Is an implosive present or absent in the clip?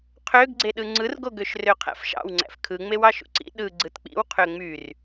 present